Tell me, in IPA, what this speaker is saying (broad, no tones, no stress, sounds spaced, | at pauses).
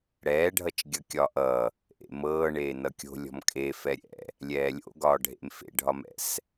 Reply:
ɽ ɛː ɖʱ ʌ t͡ʃ ɡʲ ʌ kʲ ɒ ʔ ʌ | ʔ ḛ m ɤː ɳ eː n ʌ kʲ o̤ lʲ ɔ̤ m kʼ e f ɛ ɾʲ ɛ̰ | lʲ ɛː lʲ o̰ ɡ ɒː ɖʱ ḛ m f ḛ ɖʱ ɒ m ɛ̰ s